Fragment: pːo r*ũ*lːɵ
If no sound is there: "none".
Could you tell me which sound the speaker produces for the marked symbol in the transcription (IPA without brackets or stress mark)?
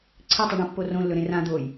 õ